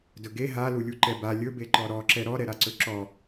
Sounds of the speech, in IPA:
d ɵ ɡ e ɦ a l u lʲ u ǃ ɛ b a lʲ ɵ b e ǃ ɔ ɾ ɔ ǁ ɛ ɾ ɔ ɾ ɛ ɾ a ǀ ɵ ǁ ɔ

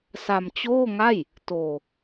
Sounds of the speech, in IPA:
s a˧ m t͡ɕ oː˥˩ ŋ a˥˩ j | t oː˧

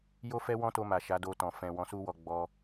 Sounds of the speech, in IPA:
j o˦ f ɛ˦ w ɔ̃˦ t o˧ m a˨ ʃ a˨˦ d o˧ t ɔ̃˨ f ɛ̃˨ w ɔ̃˨˦ s u˦ w ɔ˧ ɡ͡b ɔ˧

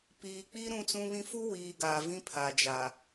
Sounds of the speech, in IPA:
p iː˨ k͡p i˦ ɾ ũ˦ t͡s ũ˦ β ĩ˦ f u˦ w iː˨ ɡ aː˨ v ĩ˦ pʰ a˨ d͡ʒ aː˨

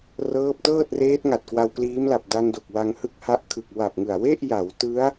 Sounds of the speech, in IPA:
r ɤː˦˥ p̚ t ɤː˥˩ t̚ r eː˦˥ t̚ ŋ a˨˩ t̚ k w a˧ w k l iː˦˥ m l a˨˩ p̚ d a˧ n d o˨˩ k̚ w a˧ ŋ h ɯ˥˩ k̚ h a˦˥ ʔ kʰ ɯ˨˩ k̚ w a˨˩ p̚ ŋ ɯ˨˩ a̯ w e˥˩ ʔ j a˩˦ w t ɯ˦˥ a̯

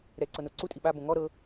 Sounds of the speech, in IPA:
ɾ ɛ ǀ ɤ n o ǀ u tʼ i ɓ a b õ ŋ ɔ ɾ ɤ

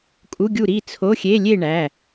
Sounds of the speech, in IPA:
kʼ u˧˥˧ ɡʲ u˥˨ ɾ i˥˨ t͡sʰ o˧˥˧ xʲ e˧˥˧ lʲ e˥˨ ɳ æ˩˧˩

